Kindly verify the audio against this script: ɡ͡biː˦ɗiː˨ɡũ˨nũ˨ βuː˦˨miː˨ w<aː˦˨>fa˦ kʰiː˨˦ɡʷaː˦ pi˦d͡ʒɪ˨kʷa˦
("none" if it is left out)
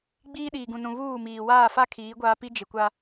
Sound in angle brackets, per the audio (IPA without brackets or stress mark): aː˦˨